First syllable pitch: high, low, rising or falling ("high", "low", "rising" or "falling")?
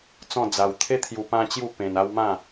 falling